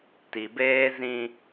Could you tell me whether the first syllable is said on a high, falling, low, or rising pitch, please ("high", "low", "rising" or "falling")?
low